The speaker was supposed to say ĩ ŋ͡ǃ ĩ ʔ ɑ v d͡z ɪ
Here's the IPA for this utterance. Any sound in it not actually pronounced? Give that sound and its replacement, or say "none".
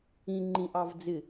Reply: none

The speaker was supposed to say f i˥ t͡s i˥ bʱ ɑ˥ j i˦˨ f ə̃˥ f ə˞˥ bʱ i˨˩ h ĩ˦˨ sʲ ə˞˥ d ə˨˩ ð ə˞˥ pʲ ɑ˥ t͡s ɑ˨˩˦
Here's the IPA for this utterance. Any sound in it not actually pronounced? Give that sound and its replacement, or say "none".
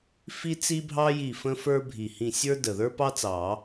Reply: pʲ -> p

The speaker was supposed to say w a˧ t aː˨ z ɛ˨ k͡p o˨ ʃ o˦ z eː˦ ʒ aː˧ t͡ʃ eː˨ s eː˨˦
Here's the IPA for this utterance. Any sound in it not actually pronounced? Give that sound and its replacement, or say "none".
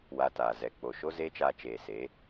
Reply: ʒ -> t͡ʃ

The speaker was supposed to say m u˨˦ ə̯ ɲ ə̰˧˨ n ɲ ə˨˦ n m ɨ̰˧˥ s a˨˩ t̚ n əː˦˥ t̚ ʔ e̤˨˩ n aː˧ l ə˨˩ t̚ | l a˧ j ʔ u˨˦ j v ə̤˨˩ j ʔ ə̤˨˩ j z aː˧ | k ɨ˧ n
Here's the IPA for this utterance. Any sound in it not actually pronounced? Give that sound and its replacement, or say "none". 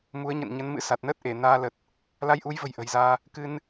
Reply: e̤˨˩ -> e˧˩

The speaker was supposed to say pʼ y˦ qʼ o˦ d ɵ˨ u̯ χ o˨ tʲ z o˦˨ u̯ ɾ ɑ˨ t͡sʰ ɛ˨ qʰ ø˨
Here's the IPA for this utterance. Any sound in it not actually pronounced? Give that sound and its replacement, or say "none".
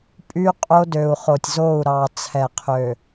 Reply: ɵ˨ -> ø˨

